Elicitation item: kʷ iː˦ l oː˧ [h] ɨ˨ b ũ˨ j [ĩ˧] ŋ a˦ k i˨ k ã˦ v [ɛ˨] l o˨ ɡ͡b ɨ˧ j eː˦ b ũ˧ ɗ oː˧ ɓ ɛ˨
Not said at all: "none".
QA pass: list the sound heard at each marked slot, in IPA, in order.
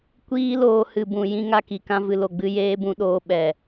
h, ĩ˧, ɨ˨

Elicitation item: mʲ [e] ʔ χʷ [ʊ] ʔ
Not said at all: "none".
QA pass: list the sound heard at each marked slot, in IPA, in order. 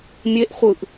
e, ɯ

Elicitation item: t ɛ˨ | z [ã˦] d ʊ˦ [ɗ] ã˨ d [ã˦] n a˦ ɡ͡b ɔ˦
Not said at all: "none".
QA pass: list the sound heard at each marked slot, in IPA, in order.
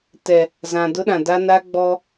ã˨, ɗ, a˦

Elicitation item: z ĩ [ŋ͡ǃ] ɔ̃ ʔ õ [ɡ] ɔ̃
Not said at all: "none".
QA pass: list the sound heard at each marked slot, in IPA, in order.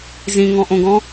ŋ, ɡ

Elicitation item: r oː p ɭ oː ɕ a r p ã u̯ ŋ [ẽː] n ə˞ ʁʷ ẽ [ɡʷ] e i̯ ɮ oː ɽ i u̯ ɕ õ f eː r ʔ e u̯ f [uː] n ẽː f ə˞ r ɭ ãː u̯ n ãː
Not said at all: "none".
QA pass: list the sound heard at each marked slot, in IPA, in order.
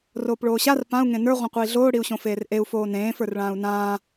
ẽ, qʷ, oː

